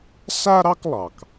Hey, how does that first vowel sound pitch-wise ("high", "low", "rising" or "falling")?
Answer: high